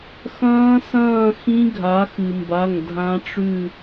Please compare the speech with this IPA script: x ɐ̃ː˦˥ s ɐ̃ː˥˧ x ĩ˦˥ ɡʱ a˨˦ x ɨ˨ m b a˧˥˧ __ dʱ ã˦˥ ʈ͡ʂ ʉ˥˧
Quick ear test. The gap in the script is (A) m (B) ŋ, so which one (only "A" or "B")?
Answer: B